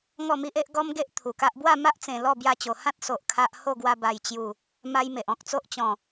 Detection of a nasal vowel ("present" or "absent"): present